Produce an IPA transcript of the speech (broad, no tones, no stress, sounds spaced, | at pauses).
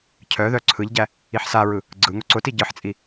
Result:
cʰ œ ð œ ǀʰ ɯ ʎ ɟ æ | i ħ s a ɹ ɯ | ɡ͡ǀ ɯ ŋ ʊ ǀ ʊ t i ɟ ɯ ħ t͡sʼ i